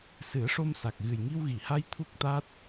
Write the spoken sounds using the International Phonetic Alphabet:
s ɨ˨˩˦ ə̯ ʂ o˧ m s a˨˩ k̚ ɣ ɨ˨˩ j ŋ i˧ w ɣ i˨˩˨ h a˧ j t̪ʰ u˦˥ k̚ t̪ a˦˥ t̚

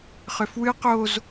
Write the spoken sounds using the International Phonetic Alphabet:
χ ʏ f w ɨ q o z

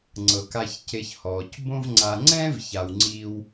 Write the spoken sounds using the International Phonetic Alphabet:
ŋ͡ǀ ɤ˩ k a˨ ç c e˨ ç h ɔː˩ c b õ˦ v ŋ͡ǀ a˨ ŋ͡ǀ ɛ̃˥ v ç a˨ w ŋ͡ǀ iː˦ w

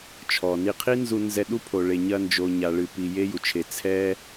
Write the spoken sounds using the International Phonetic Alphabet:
t͡ʃʰ ɔ˨ n i˧ qʰ i˦ n z u˧ n z ɛ˧ ɗ u˦ pʰ o˨ ɭ e˨ ɲ ɐ˧ n d͡ʒ o˨ ɲ a˨ ɭ ɨ˧ p i˧ j e˦ j u˨ t͡ʃʰ e˧ t͡sʰ ɛ˦

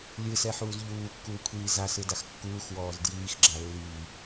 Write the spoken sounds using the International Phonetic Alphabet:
lʲ ɯ s ɛ ħ uː z ʎ uː kː uː kʷʰ iː z a s ɯ d a x kː uː x w ɔː z d j iː x ɡ͡ǁ a lː iː

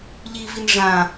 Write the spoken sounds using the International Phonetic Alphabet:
ʎ i v i n ʐ ã

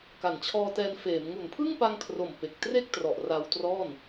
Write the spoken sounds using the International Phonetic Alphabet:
k a˨˩ n t͡ɕʰ ɔː˧ t ɛː˧ n f eː˩˦ m ŋ u˨˩ n pʰ ɯ˥˩ ŋ p a˧ ŋ kʰ r o˨˩ m p e˨˩ k̚ t r e˥˩ k̚ t r ɔ˨˩ ʔ r a˧ w t r ɔː˥˩ n

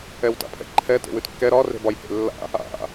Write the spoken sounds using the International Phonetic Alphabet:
ɛ w t a̰ pʰ ɛ̰ ǃʰ ɛ t ḛ w ʉ t kː ɛ ɾ ɒ r e̤ b ɒ j h ḛ lː a̰ | a̰

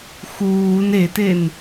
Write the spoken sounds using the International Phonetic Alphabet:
x uː n e t e n

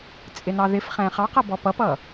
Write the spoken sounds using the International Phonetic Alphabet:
t͡sʼ ɪ n ɑ ð ɪ f χ ɛ̃ χ ɑ q ʌ b ɔ p ʌ p ʌ

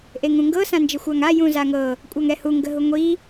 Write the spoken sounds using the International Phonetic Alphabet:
ʔ e ŋ ũ ŋ ɡ ɤ s ã n d͡ʒ ə xʷ a ŋ a j ũ z a ŋ ɤ | kʷʼ a ŋ ɛ h u ŋ ɡ ə ɦ u ŋʷ i

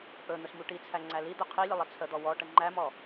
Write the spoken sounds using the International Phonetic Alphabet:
ʔ ɵ n̪ ɵ s m u ʈ i t͡sʰ æ ŋ͡ǀ æ l i d̪ ɵ qʰ i lʲ ə lˠ ə t͡sʰ ə d̪ ɔ w ɔ ʈ ə ŋ͡ǃ æ m ɔ

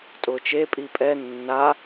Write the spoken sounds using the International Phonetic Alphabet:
tʼ ʊː t͡ʃ e pʼ i pʼ ɛ nː a

